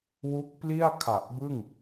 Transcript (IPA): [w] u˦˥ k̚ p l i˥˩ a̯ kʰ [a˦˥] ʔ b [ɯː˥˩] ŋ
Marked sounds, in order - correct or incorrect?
correct, incorrect, incorrect

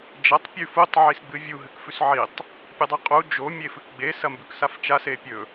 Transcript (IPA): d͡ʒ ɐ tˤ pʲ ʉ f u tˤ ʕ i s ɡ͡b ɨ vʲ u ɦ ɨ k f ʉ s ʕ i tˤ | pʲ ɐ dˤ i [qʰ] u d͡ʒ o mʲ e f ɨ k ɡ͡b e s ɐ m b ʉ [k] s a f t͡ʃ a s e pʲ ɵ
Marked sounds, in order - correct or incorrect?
incorrect, correct

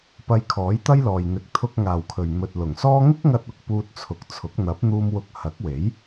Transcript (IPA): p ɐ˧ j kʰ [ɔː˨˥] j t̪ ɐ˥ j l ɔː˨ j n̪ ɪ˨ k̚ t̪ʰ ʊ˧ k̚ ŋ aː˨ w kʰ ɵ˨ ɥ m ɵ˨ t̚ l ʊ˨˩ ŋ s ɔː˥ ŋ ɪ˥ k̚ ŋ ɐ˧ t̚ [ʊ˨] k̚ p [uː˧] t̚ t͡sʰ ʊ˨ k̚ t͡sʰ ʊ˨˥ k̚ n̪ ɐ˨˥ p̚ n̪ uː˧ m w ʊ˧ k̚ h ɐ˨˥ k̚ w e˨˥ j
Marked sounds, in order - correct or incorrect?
correct, correct, correct

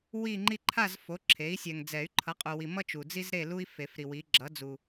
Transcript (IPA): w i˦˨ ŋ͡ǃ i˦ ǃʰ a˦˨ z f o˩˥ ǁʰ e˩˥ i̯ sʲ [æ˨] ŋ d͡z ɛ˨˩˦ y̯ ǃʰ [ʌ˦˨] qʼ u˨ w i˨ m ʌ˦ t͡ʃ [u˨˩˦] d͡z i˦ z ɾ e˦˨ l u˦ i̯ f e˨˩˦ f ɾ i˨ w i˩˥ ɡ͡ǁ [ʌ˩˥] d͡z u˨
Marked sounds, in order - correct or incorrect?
incorrect, incorrect, incorrect, correct

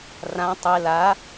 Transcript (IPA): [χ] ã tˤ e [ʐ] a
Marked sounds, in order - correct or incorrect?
incorrect, incorrect

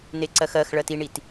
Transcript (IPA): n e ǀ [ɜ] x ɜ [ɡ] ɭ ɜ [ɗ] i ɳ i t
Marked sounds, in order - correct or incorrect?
correct, incorrect, incorrect

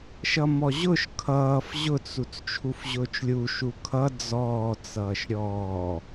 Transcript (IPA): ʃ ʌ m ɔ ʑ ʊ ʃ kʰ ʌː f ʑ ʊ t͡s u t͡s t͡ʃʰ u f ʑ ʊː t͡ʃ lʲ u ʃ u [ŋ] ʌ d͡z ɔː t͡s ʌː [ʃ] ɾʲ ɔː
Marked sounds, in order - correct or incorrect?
incorrect, correct

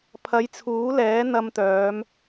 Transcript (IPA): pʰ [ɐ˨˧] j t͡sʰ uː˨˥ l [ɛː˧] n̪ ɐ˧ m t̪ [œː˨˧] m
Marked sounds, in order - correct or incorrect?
incorrect, incorrect, correct

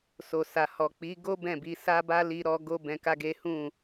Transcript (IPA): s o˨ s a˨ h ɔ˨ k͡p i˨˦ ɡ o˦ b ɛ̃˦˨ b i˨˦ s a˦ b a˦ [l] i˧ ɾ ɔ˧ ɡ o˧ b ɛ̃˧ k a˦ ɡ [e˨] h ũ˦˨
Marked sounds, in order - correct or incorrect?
correct, incorrect

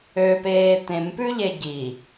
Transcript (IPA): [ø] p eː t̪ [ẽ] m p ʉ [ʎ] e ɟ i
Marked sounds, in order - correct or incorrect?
correct, correct, correct

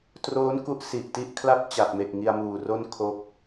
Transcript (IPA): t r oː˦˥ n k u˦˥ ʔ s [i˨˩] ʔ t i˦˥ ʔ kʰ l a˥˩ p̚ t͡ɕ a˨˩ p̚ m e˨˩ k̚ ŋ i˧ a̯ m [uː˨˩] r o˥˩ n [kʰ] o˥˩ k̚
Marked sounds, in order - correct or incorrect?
correct, correct, correct

